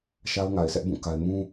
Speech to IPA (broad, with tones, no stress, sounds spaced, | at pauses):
ʃ a˦ ʊ̯ ŋ a˨ ɪ̯ sʰ ɛ˦ ʔ b ũ˦˨ k a˦ ɪ̯ m ũ˦